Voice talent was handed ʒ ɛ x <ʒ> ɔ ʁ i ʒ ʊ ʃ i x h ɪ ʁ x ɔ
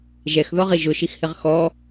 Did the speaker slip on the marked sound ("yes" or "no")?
yes